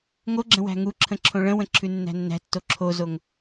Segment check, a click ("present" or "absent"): present